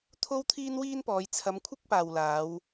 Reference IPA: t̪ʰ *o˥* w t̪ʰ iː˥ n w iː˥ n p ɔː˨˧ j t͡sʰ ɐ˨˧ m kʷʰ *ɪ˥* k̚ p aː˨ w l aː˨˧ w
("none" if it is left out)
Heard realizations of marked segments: o˥, ɪ˥

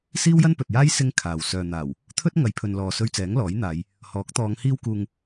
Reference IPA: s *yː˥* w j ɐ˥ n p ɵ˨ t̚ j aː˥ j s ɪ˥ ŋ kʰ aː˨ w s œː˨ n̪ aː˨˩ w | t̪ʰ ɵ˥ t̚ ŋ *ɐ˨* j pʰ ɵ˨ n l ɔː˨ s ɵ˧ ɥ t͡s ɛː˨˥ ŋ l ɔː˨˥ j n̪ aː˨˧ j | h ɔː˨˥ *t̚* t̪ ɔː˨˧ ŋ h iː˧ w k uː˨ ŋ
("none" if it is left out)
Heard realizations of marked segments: iː˥, ɐ˨˧, k̚

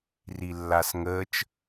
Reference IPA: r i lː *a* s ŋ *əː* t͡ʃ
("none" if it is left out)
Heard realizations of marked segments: a, əː

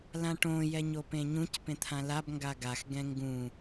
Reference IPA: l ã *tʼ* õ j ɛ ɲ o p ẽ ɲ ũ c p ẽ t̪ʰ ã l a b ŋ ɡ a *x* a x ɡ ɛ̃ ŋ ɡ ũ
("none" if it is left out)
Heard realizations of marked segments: ʈ, ɡ

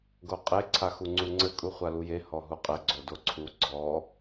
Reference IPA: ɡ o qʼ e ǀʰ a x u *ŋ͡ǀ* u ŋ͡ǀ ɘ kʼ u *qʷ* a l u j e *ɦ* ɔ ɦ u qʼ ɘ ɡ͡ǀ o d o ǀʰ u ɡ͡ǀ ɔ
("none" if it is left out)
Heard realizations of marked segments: ŋ͡ǀ, χʷ, h

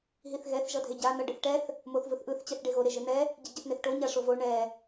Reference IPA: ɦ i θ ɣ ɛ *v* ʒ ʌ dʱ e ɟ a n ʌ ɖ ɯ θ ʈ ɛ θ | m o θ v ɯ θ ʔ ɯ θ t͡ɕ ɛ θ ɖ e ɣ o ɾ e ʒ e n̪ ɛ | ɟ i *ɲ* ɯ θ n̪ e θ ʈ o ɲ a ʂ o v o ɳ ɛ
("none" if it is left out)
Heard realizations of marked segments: θ, ɟ

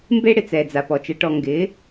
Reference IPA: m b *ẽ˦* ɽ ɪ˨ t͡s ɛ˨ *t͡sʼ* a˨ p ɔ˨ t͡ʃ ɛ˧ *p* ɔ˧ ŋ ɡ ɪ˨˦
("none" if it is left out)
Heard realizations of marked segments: e˦, d͡z, ʈ

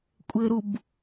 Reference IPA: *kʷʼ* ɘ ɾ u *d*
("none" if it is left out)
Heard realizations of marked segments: kʷʼ, b

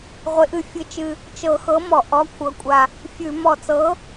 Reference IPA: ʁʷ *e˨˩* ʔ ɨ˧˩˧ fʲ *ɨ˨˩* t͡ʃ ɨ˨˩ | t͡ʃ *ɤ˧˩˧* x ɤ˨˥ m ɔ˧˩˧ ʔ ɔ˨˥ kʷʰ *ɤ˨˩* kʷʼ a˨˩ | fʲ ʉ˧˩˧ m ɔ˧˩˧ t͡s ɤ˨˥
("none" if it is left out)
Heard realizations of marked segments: e˨˩, ɨ˨˩, ɤ˧˩˧, ɤ˨˩

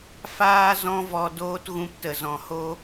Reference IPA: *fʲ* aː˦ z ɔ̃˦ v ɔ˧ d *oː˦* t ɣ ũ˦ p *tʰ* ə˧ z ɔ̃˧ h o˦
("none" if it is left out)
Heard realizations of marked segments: f, oː˦, t

